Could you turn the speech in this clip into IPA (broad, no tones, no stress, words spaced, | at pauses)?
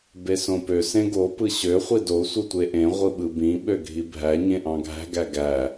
besõpø sẽɡo pɯɕø χʷido sʷɯtʷeʔẽ ʁʷɯɓɯbĩ ɓøɡʱibʱæ ɲẽʔɑ̃ɡʱæ̤ ɡæɡæ